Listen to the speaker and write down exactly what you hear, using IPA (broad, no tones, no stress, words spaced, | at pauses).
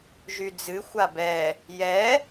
ʒyd͡zɨ xʷabɛ | jɛ